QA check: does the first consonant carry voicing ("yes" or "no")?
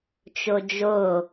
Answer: no